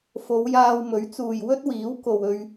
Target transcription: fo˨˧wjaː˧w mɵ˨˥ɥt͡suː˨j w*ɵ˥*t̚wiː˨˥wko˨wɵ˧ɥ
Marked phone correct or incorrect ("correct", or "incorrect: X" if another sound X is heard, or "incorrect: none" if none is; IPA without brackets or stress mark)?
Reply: correct